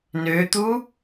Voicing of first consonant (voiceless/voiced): voiced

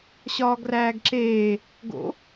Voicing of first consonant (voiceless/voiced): voiceless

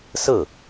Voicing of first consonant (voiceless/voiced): voiceless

